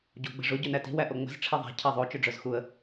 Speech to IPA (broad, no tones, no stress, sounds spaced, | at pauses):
ɟ o ɡ͡b ə̤ ʐ ʊ ɟ œ n æ t i̤ w æ ʔ o ŋ͡m ə̤ z ʈ͡ʂʰ e ðˤ æ̤ cʰ æ ðˤ o t͡ʃ ɵ ɖ͡ʐ œ z x u ə̯